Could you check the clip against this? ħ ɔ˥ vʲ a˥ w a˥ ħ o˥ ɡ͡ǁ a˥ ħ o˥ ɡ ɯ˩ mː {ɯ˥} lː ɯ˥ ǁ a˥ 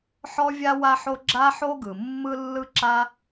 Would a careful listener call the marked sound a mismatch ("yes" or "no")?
no